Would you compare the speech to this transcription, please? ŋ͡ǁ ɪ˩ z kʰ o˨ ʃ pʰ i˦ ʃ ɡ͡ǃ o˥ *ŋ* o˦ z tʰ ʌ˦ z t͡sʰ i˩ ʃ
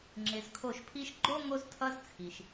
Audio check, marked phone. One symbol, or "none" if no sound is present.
ŋ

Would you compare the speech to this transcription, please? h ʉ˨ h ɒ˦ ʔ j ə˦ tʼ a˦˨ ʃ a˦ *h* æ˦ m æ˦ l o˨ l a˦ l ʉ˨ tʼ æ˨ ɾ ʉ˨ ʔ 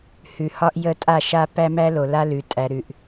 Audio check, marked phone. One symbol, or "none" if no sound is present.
p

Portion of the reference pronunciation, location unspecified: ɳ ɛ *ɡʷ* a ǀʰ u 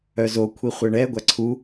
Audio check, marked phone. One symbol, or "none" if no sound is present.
ɡʷ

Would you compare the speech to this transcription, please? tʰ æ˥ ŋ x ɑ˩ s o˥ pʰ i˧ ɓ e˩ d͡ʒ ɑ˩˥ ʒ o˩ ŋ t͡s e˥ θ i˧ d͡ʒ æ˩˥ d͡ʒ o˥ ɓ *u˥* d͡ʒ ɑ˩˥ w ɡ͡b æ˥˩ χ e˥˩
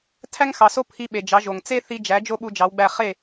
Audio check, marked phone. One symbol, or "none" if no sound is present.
u˧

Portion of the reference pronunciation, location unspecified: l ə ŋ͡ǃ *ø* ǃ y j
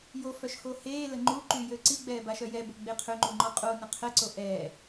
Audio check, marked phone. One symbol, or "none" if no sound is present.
u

